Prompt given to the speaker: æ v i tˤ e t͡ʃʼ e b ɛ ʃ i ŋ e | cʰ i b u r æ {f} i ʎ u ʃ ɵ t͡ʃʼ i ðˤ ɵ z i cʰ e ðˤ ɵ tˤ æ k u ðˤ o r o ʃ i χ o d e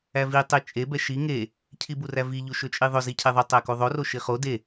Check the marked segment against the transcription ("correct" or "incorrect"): incorrect